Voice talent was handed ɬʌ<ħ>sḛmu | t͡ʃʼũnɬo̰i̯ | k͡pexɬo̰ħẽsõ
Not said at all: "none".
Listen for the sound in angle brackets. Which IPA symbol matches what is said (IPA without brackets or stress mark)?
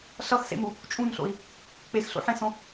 x